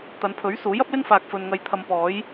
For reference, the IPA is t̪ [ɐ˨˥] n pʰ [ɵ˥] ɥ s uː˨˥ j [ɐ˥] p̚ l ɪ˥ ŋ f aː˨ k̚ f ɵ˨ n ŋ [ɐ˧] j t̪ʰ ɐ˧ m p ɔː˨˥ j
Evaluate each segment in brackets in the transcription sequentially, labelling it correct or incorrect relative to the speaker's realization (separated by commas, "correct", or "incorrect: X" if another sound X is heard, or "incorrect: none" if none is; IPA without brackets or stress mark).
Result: incorrect: ɐ˨˧, incorrect: ɵ˨˥, correct, correct